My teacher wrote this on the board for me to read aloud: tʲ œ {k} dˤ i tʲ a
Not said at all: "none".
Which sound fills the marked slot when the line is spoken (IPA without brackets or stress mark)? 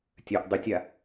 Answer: ʔ